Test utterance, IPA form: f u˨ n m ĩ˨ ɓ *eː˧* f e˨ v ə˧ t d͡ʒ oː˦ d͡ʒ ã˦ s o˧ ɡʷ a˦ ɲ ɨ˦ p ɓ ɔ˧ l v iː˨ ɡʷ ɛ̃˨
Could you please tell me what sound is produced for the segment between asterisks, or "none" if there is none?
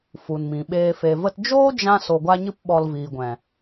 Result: eː˧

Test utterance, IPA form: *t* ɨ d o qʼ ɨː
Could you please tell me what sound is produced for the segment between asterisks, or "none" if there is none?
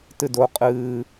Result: t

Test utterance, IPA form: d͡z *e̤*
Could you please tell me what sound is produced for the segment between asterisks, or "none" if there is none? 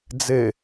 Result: e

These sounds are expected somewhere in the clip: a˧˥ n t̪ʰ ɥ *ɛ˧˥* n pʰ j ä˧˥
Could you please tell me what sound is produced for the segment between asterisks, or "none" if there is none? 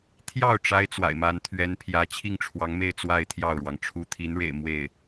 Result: ɛ˧˥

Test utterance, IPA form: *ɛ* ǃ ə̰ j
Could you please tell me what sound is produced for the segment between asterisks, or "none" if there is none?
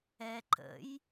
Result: ɛ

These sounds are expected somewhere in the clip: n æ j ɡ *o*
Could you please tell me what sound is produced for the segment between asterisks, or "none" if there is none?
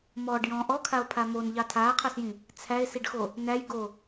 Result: o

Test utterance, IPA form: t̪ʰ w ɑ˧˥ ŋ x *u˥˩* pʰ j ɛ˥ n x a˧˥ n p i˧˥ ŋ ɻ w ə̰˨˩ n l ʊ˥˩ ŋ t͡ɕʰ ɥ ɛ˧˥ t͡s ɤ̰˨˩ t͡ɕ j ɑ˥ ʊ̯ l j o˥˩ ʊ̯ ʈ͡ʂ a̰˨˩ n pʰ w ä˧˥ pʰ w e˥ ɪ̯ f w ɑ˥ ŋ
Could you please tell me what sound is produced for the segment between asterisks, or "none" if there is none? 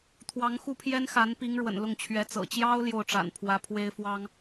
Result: u˥˩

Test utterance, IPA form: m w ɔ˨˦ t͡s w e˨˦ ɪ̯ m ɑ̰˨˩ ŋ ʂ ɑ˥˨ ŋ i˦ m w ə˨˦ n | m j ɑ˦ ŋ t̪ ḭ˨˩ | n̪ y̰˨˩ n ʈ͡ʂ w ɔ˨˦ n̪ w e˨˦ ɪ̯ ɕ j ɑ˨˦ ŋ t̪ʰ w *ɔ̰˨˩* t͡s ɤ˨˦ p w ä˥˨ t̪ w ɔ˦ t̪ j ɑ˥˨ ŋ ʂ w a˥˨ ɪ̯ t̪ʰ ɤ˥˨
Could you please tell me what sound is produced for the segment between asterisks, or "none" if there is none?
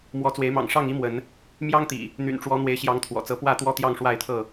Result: ɔ̰˨˩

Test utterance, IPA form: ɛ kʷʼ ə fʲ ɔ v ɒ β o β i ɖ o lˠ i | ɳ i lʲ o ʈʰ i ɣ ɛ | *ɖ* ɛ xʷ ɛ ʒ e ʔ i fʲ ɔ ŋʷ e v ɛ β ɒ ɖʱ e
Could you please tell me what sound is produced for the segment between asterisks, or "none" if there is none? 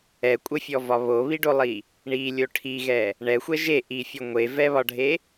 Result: ɳ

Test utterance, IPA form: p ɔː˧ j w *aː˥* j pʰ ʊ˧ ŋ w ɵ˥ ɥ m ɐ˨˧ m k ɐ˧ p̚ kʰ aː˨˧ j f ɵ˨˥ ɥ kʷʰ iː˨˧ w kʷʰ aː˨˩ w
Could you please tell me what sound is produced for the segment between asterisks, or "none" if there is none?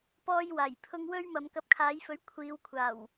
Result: aː˨˩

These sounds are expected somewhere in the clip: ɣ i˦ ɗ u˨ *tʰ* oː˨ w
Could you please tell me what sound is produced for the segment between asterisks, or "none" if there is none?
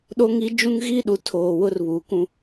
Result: tʰ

